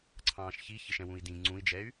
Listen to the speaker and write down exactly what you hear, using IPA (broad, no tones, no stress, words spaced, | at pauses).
ǀʰɑ̃ːʃçi çɪʃɛ̃wũi̯dĩ ŋ͡ǀũi̯d͡ʒɛy̯